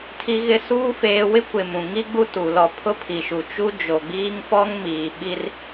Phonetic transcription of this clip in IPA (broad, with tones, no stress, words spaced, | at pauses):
tʰi˦ɣɪ˦ suː˦ feː˦ wɪ˦kʷɪ˨ mũ˨ŋi˦ɡ͡bu˦ tu˨ lɔ˨ pʰʊ˦pʰi˨ʃu˨ t͡ʃu˦d͡ʒo˨ɡ͡biː˦ŋ fɔ˦ŋmiː˨ ɓi˦r